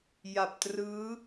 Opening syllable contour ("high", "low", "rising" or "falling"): low